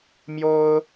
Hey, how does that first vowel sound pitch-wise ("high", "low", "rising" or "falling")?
high